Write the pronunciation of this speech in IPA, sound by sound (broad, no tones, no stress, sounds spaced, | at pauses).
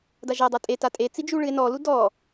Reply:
d a ʒ a dˤ a tʼ e t a tʼ e t͡s i d͡ʒ u ɭ ɨ e̯ n ɔ l u d ɔ